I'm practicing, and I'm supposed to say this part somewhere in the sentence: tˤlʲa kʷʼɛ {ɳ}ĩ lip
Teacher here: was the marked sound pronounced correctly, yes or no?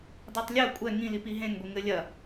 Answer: no